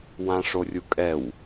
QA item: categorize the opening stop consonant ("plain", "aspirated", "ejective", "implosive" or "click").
ejective